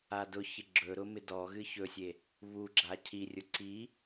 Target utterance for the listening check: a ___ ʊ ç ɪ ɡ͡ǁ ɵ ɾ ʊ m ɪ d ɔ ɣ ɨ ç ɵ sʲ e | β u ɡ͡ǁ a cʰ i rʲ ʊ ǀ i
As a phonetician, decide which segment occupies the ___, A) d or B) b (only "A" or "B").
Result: A